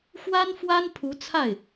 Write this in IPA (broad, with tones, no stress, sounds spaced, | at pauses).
x w a˥ n f w a˥ n pʰ u˧˥ t͡sʰ a˥˩ ɪ̯